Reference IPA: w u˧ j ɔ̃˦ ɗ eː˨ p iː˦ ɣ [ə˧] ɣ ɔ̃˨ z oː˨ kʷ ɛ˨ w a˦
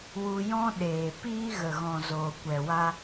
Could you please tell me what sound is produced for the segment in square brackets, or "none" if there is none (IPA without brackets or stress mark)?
ə˨